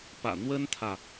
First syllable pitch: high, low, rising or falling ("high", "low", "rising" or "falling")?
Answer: low